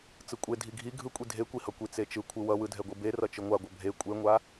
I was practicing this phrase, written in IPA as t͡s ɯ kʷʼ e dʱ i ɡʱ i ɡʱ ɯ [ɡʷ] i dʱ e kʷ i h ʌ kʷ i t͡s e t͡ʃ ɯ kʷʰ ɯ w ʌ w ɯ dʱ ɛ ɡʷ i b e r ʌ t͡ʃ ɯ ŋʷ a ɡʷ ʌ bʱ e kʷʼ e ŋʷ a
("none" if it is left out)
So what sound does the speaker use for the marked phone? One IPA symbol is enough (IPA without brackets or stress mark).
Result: kʷʼ